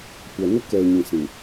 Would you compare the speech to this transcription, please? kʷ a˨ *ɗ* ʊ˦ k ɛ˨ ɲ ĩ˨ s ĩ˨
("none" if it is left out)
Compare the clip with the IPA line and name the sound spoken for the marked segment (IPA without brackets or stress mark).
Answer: n